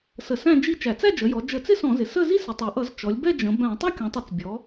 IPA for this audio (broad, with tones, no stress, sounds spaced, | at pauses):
s ə˧˩˧ s æ̃˥˧ d͡ʒ i˥˧ t͡ʃ æ˧˩˧ t͡s æ˥˧ d͡ʒ ə˩˧ j ɔ˩˧ d͡ʒ ə˧˩˧ t͡s ɪ˥˧ s ɔ̃˧˩˧ z ɪ˩˧ s ə˥˧ z i˥˧ s ɪ˩˧ tˤ ʌ˩˧ ʔ ʌ˧˩˧ z t͡ʃ ɔ˩˧ lʲ b ɛ˥˧ d͡ʒ ə̃˩˧ b æ̃˧˩˧ tˤ ʌ˥˧ kʲ ɔ̃˩˧ tˤ ʌ˧˩˧ t͡s bʲ ɔ˩˧